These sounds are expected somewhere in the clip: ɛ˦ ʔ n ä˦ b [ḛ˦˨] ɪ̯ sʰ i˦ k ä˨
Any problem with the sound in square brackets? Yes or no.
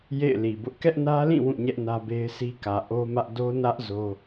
yes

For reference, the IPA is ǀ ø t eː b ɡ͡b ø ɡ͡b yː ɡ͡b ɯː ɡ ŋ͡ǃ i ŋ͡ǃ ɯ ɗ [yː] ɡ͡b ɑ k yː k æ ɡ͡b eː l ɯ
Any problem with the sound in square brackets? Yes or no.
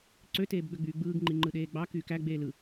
yes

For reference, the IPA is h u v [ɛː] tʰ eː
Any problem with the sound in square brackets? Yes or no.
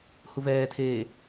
no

